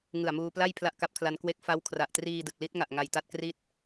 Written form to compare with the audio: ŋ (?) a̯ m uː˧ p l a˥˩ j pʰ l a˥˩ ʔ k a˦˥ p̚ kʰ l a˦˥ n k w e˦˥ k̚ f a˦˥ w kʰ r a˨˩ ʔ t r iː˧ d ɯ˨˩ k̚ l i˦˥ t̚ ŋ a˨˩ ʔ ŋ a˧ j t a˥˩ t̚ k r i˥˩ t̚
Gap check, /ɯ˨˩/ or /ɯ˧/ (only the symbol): ɯ˨˩